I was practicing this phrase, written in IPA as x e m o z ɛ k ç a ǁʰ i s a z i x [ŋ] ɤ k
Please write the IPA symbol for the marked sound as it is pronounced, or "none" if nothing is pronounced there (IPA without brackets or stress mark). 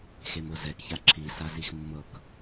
mː